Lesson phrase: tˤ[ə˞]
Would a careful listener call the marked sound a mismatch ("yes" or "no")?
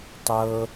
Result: yes